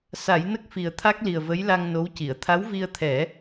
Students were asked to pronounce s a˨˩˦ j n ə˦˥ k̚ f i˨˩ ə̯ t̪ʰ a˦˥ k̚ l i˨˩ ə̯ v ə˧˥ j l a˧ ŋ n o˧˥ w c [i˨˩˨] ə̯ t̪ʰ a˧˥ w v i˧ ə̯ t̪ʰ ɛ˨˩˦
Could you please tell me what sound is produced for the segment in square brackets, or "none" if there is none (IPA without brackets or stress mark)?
i˨˩˨